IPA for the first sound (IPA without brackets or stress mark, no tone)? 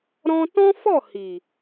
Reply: ɾ